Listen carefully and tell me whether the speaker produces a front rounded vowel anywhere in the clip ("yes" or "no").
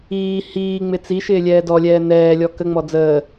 no